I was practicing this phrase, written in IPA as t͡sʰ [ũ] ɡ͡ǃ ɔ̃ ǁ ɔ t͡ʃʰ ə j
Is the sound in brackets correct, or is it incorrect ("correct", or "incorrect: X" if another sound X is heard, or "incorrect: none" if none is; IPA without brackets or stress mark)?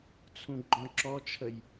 correct